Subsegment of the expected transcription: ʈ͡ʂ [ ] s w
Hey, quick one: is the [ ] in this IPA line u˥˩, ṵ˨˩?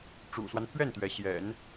ṵ˨˩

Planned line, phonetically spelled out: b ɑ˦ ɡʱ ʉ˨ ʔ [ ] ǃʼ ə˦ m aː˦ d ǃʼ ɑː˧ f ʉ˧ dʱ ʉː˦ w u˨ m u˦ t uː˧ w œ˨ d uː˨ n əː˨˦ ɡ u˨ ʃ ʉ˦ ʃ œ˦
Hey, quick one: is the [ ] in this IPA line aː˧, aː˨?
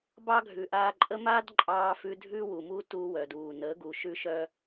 aː˧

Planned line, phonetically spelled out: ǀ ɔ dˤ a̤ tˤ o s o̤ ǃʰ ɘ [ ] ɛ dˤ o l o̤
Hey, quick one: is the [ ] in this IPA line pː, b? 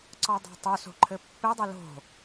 pː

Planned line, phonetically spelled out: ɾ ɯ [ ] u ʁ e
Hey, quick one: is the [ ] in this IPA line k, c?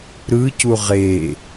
c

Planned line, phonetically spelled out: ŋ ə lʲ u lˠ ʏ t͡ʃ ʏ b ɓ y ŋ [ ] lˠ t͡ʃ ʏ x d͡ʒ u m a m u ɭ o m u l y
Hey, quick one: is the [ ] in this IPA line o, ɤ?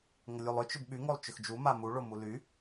o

